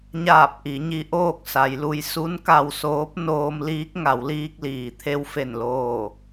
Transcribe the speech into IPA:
ɲ aː˧˩ p̚ ʔ i˩˧ ɲ i˧ ʔ oː˥˨ k̚ s a˩˧ j l u˧ j s u˧˥ n k a˧ w s oː˧˥ p̚ n oː˧ m l iː˧˥ k̚ ŋ a˩˧ w l iː˧ k̚ l iː˩ t̪ʰ e˧ w f e˧˩ n l oː˧˩

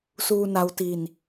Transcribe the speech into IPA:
s uː˧ n a˧ w t i˧ n

